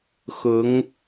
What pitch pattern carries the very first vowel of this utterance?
rising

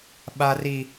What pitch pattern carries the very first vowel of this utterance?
high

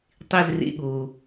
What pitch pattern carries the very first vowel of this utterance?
falling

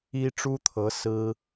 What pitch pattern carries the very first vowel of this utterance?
high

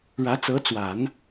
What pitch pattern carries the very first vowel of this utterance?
rising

